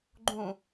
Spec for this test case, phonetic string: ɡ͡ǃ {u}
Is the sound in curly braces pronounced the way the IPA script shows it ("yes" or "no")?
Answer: no